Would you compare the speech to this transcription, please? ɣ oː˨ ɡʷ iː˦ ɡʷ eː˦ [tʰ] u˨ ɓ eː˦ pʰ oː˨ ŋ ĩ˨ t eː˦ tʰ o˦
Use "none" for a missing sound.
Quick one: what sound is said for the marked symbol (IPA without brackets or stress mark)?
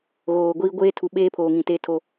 tʰ